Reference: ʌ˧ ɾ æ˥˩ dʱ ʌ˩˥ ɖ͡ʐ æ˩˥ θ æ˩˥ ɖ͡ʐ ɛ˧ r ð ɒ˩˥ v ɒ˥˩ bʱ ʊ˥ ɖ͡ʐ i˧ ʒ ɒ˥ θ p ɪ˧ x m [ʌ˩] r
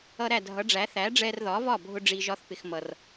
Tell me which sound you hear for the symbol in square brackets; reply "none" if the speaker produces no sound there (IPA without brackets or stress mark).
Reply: ʌ˩